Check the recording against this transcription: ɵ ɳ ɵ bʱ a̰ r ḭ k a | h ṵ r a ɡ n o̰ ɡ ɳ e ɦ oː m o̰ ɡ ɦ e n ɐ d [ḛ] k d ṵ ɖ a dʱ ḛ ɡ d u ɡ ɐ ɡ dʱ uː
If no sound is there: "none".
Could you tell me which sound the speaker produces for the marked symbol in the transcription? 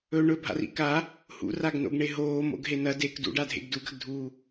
e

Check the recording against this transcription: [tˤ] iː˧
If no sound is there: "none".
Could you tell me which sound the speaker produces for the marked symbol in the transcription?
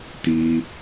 t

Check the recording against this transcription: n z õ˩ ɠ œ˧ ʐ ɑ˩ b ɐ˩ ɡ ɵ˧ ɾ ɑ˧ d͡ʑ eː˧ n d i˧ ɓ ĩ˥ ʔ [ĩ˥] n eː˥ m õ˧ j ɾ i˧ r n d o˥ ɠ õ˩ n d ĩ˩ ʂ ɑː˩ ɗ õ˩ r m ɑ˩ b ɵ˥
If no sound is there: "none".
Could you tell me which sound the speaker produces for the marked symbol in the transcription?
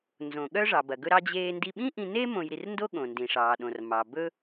ĩ˧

